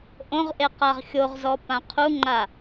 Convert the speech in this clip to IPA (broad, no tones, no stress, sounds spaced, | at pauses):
ʔ õ ʁ ʔ e q a ʁ xʲ o ʁ z ɔ p ã qʰ u ŋ͡ǃ a